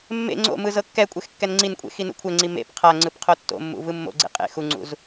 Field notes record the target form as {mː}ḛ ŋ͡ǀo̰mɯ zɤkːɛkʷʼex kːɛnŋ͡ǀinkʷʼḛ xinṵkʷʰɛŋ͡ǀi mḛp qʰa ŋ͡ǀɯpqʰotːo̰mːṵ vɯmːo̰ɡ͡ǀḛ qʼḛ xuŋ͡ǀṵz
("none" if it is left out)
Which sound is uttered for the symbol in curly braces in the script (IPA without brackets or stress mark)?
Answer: mː